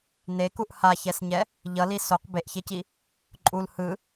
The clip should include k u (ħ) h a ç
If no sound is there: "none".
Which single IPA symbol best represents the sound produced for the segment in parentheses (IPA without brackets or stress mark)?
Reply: ʔ